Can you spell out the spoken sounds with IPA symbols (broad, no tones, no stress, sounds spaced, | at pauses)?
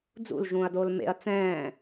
d͡z ṵ l ʒ ũː ɐ̯ d oː l m ḛ ɐ̯ t͡s ɛ̃ː